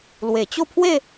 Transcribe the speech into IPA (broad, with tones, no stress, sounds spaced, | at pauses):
l w e˨˩ t͡ɕ o˥˧ pʰ w e˥˧